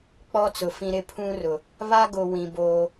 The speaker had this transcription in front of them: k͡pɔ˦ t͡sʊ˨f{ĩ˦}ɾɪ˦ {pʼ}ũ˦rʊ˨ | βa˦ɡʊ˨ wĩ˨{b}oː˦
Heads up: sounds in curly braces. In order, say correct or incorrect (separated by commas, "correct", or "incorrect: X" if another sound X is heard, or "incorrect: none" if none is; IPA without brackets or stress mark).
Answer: correct, incorrect: pʰ, correct